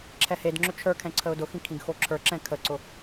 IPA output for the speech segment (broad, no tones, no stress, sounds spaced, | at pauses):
ǁʰ ɛ h e d ŋ͡ǁ ʏ t͡ʃʰ ə˞ kʰ ɛ̃ ǀʰ ə ʊ̯ d ʊ x ĩ kʰ ĩ ɡ x o ǁʰ ə˞ ǁ ɛ̃ kʰ ə ǀ ʊ